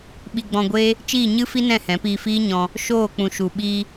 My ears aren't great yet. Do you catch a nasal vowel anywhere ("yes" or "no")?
yes